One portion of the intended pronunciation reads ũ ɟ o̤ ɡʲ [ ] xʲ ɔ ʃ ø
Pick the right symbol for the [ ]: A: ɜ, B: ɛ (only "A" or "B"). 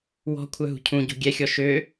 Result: B